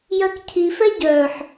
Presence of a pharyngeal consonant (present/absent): present